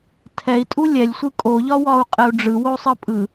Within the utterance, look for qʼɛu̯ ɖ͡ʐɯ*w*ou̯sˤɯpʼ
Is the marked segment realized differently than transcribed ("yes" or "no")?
no